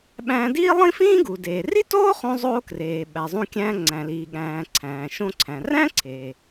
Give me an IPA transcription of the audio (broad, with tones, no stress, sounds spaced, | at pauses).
ɓ æ̃ː˧ d iː˥ lˠ ĩ˥ f ĩː˥ ɡ u˩ d eː˩ r i˥ t oː˥ χ õ˧ zˤ oː˧ k r eː˩ ɓ æ˩ zˤ ũ˧ kʲ æ̃ː˧ ŋ͡ǀ æ̃˩ l iː˩ ɠ æ̃ː˩ ǀʰ æ̃ː˩ ʃ õ˧ ǀʰ æ̃˩ r æ̃˥ ǀʰ eː˩